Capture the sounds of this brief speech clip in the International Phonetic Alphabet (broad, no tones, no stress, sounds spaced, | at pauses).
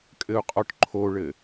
kʼ ɘ u̯ qʼ ɔ ʈ ǃʰ o ɭ ɘ